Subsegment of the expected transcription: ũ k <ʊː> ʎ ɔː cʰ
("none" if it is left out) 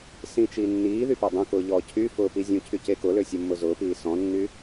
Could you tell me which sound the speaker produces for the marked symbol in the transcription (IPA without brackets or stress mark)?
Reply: ʊː